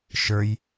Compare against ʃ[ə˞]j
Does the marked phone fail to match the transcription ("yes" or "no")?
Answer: no